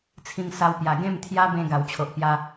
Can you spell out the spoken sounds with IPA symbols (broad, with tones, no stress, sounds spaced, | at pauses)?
t͡sʰ ĩ˧ ŋ s a˧ w p j a˨˩ ɡ ẽ˥˧ m t̪ʰ j a˦ b ẽ˧ ɡ a˨˩ w t͡ɕʰ o˨ ʔ p j a˦